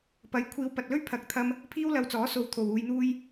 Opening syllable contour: rising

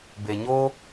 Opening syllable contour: low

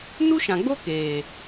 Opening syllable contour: high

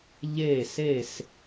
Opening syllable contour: falling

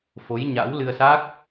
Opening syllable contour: rising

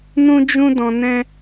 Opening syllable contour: high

